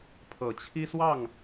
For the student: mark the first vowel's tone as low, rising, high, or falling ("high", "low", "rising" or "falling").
low